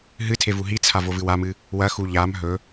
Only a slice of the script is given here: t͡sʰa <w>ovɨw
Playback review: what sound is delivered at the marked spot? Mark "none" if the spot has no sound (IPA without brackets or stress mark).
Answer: v